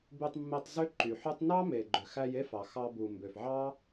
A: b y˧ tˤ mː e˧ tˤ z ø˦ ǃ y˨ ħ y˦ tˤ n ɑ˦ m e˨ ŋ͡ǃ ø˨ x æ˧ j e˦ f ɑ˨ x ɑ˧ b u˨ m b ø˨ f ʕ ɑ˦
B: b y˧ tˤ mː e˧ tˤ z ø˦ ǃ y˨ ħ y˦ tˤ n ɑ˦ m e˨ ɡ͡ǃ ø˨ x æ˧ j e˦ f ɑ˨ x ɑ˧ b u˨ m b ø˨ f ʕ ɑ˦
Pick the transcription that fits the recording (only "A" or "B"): B